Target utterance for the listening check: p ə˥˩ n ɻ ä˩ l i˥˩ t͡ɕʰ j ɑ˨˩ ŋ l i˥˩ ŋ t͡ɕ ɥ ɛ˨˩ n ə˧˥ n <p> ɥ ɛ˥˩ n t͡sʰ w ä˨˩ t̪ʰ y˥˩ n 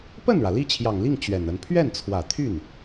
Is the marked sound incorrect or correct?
incorrect